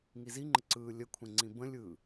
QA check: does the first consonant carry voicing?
yes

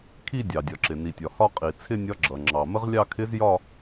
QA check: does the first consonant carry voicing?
no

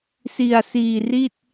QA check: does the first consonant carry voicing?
no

